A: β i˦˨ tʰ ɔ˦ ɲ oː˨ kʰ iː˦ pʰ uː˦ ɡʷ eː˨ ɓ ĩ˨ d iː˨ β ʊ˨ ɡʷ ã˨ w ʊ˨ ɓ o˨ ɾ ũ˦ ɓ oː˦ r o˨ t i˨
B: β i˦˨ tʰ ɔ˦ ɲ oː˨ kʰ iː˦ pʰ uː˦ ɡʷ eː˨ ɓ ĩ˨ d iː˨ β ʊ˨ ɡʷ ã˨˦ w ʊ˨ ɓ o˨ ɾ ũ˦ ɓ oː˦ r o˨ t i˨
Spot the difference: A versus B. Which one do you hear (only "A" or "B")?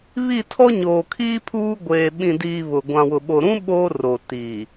A